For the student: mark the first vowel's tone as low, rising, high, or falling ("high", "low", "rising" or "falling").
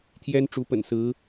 high